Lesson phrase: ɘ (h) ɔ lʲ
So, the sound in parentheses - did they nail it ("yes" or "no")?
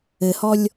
yes